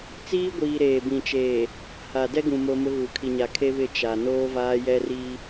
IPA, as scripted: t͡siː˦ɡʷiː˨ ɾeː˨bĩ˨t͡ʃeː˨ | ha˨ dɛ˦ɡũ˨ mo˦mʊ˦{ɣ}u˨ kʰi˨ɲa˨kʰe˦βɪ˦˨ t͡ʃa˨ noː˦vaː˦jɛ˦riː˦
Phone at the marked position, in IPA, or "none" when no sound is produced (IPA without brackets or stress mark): ɣ